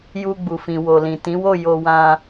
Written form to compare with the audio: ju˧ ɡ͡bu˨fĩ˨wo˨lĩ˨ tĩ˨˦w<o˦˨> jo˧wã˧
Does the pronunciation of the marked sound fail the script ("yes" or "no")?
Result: no